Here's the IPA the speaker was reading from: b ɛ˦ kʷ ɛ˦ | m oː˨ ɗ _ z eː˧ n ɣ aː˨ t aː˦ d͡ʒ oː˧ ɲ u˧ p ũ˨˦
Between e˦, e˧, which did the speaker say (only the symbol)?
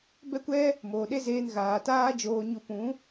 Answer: e˦